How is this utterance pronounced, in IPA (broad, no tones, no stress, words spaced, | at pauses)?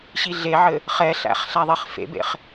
ɕiɮeʕɘ | χɛɬæ̰χ ɬæðˤeχfḛbḛχ